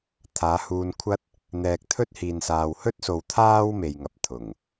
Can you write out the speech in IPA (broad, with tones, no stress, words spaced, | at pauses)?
t̪ʰaː˨˧huː˧nkʷʰɐ˥t̚ | n̪ɛː˨k̚t̪ʰɵ˥t̚hiː˨n saː˧w hɵ˥t̚ so˧wt̪ʰaː˥w me˨jŋɐ˨p̚ t̪ʰʊ˨˩ŋ